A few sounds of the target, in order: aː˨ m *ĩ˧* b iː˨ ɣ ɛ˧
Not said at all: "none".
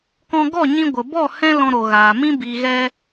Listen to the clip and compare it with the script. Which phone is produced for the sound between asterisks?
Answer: ĩ˦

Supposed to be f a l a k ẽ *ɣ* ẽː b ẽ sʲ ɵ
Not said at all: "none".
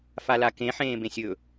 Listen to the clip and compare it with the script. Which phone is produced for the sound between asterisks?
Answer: ħ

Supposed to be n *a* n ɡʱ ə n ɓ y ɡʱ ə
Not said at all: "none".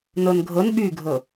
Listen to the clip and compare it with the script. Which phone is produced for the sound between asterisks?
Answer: ə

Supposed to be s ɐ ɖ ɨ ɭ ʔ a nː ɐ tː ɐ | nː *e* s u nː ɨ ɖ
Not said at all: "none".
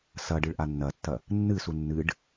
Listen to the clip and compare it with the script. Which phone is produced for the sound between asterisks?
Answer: ɨ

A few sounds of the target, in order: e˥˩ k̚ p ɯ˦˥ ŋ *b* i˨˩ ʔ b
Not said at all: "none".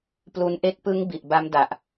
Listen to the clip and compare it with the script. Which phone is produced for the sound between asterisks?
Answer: b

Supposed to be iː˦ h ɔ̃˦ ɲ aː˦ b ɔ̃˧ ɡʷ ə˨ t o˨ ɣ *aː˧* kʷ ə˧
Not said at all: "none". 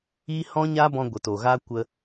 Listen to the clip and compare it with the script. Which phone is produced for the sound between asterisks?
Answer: aː˧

